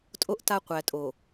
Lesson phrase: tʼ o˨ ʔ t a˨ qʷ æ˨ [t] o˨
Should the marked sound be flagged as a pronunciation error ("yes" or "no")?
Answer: yes